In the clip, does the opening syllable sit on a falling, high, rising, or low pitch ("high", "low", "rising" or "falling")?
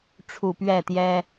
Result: low